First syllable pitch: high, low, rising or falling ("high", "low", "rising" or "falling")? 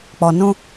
low